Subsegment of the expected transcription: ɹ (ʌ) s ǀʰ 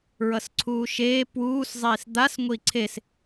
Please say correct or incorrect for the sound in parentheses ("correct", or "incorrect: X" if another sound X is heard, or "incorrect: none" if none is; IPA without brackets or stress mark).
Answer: correct